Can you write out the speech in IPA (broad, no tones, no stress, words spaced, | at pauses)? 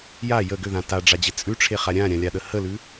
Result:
ja jə ɡʏðã taɖ͡ʐad͡ʑɪ t͡sʼʉʈ͡ʂʰeχa ɾʲãɾʲãlʲaɗə həlʉ